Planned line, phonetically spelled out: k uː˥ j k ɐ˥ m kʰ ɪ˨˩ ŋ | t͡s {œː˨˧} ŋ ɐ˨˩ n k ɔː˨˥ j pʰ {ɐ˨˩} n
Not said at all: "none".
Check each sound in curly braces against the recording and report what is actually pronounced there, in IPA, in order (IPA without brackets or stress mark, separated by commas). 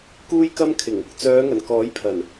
œː˨˧, ɐ˨˩